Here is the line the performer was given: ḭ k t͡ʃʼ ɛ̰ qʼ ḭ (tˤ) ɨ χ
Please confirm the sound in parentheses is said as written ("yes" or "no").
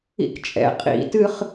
no